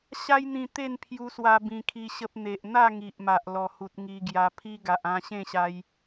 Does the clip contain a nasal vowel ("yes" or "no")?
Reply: yes